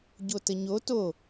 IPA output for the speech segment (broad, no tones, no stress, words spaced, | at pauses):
ɟotəɲo to